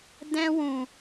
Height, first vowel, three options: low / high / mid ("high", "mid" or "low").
mid